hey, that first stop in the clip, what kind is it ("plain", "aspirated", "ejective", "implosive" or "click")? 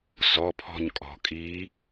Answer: aspirated